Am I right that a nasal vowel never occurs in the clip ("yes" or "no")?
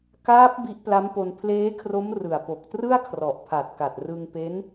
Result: yes